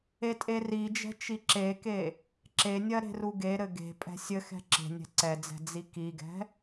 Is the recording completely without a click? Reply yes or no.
no